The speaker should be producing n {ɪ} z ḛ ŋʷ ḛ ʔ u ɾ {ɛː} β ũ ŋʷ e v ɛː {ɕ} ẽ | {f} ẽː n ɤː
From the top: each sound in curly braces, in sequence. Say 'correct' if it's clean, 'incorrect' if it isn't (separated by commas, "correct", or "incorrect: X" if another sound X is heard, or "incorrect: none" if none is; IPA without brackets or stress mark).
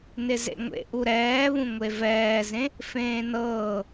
correct, correct, incorrect: z, correct